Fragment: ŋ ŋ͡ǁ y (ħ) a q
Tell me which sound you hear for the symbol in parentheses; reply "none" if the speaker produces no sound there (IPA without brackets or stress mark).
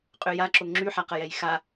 ħ